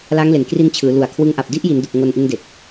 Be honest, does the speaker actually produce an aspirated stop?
yes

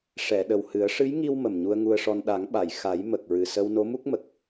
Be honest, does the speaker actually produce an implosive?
yes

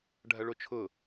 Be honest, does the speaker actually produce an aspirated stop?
yes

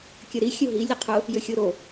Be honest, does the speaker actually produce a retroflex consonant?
no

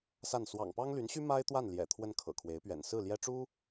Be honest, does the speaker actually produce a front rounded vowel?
yes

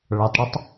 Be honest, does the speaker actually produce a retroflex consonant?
yes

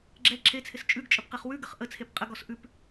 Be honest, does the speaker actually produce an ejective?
yes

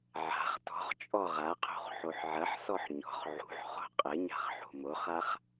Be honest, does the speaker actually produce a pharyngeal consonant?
yes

